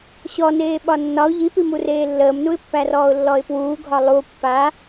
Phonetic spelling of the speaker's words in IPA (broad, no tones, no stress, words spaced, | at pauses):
ɕɔneː ɓɒnːɒʊ̯ ʎipimureː lːəːmnuɪ̯pːærɔːʊ̯ lːɔɪ̯pwuːɡʱɒ lˠu pːa